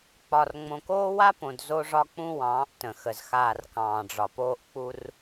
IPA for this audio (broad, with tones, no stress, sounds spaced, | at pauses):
k͡p ɒ˨ r ŋ͡m õ˨ k oː˦ w a˦ p õ˨ d z o˦ ʐ ɒ˦ k͡p ũ˦ w ɑ̃ː˨˦ ʔ t ə̃˨ x ə˨ z x aː˦˨ r k ɑ̃ː˨ ɖ͡ʐ ɒ˨ p oː˦ ʔ k͡p u˦ r